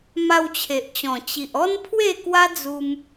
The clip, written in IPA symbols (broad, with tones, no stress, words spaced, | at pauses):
ma˧wt͡ɕʰe˨ʔt͡ɕɔ̃˨˩ t͡ɕi˨ʔɔ˦npʰwe˥˧ kwa˦d͡zu˧m